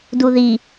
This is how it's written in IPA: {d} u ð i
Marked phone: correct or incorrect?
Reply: correct